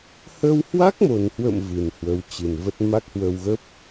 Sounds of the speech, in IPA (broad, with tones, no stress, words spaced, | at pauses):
hə˧whwa˦˥k̚mo˨˩nhwə̰˧˨m vɨ˨˩nhwə˨˦w t͡ɕɨ˨˩nvə˦˥t̚ ma˦˥k̚hwə˧wɣə˦˥p̚